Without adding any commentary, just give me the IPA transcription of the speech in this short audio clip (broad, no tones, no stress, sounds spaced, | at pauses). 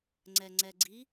ŋ͡ǀ ɛ ŋ͡ǀ ɛ ɡ͡ǀ i